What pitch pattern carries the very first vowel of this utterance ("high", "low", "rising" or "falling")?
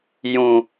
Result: low